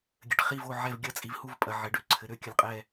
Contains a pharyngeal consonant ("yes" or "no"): yes